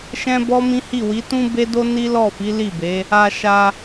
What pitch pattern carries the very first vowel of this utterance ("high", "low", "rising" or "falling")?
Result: high